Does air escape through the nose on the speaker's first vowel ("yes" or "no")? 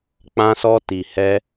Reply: yes